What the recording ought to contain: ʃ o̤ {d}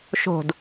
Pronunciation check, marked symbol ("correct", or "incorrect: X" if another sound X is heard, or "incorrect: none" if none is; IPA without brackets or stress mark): correct